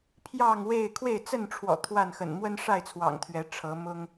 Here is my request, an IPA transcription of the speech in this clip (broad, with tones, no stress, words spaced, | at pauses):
pʰjɑ˥˨ŋwe˥˨ɪ̯ kʰwe˥˨ɪ̯t͡sə˥˨nʈ͡ʂʰwɔ̰˨˩ t̪ʰwa˥˨nxə̰˨˩n mwə˦nʂa˥˨ɪ̯t͡sʰwɑ̰˨˩ŋ t̪ʰɥɛ˨˦ʈ͡ʂʰɤ˨˦mʊ˦ŋ